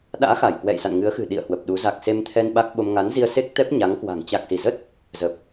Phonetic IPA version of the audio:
ɗ a̰ː˧˥ x a˧˩ j k w ɛ̰˧˨ j s a̰˧˨ n ŋ ɨ˨˦ ə̯ x ɨ̤˨˩ ɗ ḭ˧˨ ə̯ h w ə˨˩ p̚ ɗ u˨˦ z a˨˩ k̚ s e˧ m t̪ʰ ɛ˧ n ɓ a˦˥ k̚ ɓ o˧ m ŋ a˨˦ n z i˧ ə̯ s e˦˥ k̚ t̪ ɛ˦˥ p̚ ɲ a˨˦ ŋ k w a̤˨˩ ŋ t͡ɕ a˨˩ k̚ s i˧˩ z ə˦˥ t̚ | z ə˨˩ p̚

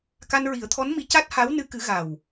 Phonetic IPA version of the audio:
k a˧ n ɹ i˨˩˦ ə̯ t̪ʰ ɔ˧˥ n m i˧ c a˦˥ t̚ h a˧˥ w n ɨ˧ k ɨ˨˩˦ ɣ a˨˩ w

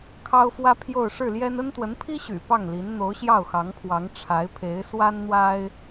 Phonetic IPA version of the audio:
kʰ ɑ˥ ʊ̯ f w ä˥ pʰ j o˥˧ ʊ̯ ʂ ɻ̩˥˩ l j ɛ˥ n ə˥ n t̪ w ə˧˥ n pʰ i˥ ɕ y̰˨˩ p ɑ˥˩ ŋ l i˧˥ n n̪ o˧˥ ʊ̯ ɕ j ɑ˥˩ ʊ̯ x ɑ˧˥ ŋ pʰ w ɑ˧˥ ŋ ʈ͡ʂʰ a˧˥ ɪ̯ pʰ e˧˥ ɪ̯ s w a˥ n n̪ w a˥ ɪ̯

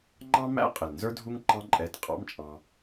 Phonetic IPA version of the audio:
ŋ͡ǃ ɑ̃˦ m æ̰˦ qʼ ɪ˨ l n z ə˞˦ dʱ u˦ ŋ ǃ ɑ̃˦ ǃʼ ɛ˧ t qʼ ɑ̰˦ m t͡ʃʼ ɑ̃˧

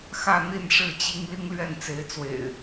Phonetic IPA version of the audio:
x ä˥˨ n̪ i˥˨ n ʂ ɻ̩˥˨ t͡ɕ i˦ ŋ l i˦ ŋ l ɥ ɛ˥˨ n t͡s e˨˦ ɪ̯ t͡s w ḛ˨˩ ɪ̯

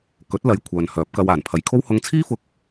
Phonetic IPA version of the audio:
k ɵ˨˥ t̚ l ɐ˨˧ j kʷʰ œː˨ n h œː˨˥ p̚ k ɐ˧ w aː˨˩ n pʰ ɐ˨ j kʰ o˥ w h ʊ˧ ŋ t͡sʰ iː˥ f ʊ˧ k̚

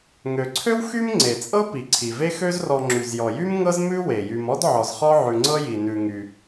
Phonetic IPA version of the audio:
ŋ ø˩ ǀʰ ø˥ w x y˦ m ŋ͡ǀ e˩ t͡sʼ ɤ˥ p i˩ ǀʰ i˩ v e˦ x ø˦ z r ɔ˨ ŋ͡ǁ y˩ z j ɔ˩ j y˦ m ŋ ɤ˥ z m ʉ˥ w e˩ j y˨ m ɔ˥ d ʕ ɔ˨ z χ ɔ˦ ʕ ʉ˨ ŋ͡ǀ ɤ˦ j i˩ n ʉ˨ ŋ y˨

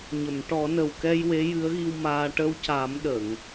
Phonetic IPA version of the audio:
ɲ ə˨˩˨ m ʈ ɔ˨˩˦ n ə˨˩ w k ɛ˧ j w e˧˥ j ɨ˧˥ ə̯ ɣ i˧ w m aː˧ ʈ ə˧ w c a˨˩˦ m ɗ ə˨˩˨ ŋ

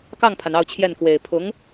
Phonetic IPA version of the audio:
k ɑ˥˩ ŋ pʰ a˩ n ɑ˥˧ ʊ̯ t͡ɕʰ j ɛ˥˩ n k w e˨˩ ɪ̯ pʰ ʊ˧˥ ŋ

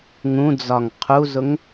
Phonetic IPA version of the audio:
ŋ ũ d͡z ɒ ŋ qʰ u z ʊ ŋ

